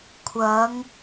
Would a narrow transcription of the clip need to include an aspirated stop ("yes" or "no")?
yes